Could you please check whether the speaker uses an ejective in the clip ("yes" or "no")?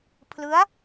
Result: no